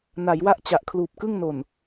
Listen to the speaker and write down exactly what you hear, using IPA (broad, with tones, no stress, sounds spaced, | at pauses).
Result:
n a˩˦ j w a˥˩ ʔ t͡ɕ a˨˩ ʔ kʰ l uː˨˩ p̚ k ɯ˥˩ ŋ n o˨˩ n